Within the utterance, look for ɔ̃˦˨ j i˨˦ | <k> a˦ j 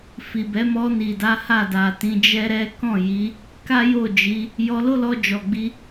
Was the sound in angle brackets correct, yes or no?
yes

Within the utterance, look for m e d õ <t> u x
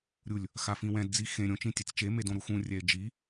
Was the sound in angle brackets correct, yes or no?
no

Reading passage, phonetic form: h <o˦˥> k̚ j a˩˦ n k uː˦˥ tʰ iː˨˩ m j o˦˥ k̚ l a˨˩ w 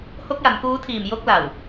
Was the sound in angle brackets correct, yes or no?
yes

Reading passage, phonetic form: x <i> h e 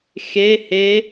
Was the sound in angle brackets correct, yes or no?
no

